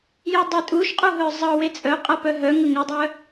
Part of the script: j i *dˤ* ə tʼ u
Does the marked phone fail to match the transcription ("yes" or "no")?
no